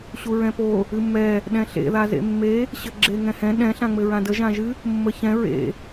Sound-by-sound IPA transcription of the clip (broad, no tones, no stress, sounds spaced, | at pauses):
ɕ u ɹ ɛ̃ p o | ɨ mː ɛ | ɗ ɛ̃ ɬ ḛ ð a z ḛ mː e | ɕ ɘ ɡ͡ǁ e ŋ ɛ̃ h ɛ̃ ɗ ɛ̃ ɬ ã ŋ͡m ɘ ɹ ã d ə ʒ ã ʒ ɨ | mː ə ç ɛ̃ ɹ ḛ